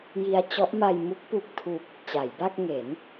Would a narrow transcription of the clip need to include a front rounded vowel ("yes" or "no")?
no